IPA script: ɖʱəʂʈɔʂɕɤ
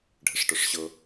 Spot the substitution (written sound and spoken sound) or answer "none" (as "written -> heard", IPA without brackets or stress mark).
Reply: none